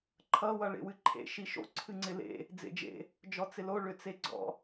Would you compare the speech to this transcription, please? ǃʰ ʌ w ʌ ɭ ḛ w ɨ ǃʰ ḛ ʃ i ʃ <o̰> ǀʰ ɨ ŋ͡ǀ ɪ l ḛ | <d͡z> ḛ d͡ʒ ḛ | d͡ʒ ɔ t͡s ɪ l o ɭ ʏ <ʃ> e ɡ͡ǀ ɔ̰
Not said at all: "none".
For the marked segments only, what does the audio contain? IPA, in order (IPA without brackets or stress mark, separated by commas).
o̰, d͡z, t͡s